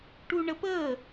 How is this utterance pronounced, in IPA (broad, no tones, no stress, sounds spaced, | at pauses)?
ʈ u ɳ ə p ə